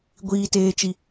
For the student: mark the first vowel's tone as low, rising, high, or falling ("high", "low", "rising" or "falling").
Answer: low